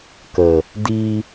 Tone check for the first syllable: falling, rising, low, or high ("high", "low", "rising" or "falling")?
low